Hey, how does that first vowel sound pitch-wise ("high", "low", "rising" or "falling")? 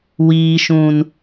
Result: low